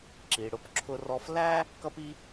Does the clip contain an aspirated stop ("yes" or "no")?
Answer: yes